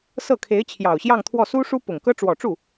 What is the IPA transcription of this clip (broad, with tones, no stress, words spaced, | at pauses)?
sɤ˥˩kʰe˧˥ɪ̯ t͡ɕʰjɑ˨˩ʊ̯ɕjɑ˥˧ŋt̪ʰwɔ˥˩ su˥ʂu˥ pʊ˨˩ŋkɤ˥ ʈ͡ʂwɔ˨˩ʈ͡ʂu˥˩